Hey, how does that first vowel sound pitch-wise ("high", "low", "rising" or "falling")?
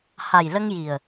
low